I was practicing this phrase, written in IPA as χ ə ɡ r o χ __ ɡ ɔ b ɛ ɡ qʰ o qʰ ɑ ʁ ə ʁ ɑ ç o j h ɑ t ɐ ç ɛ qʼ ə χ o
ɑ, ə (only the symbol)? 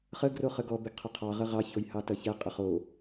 ə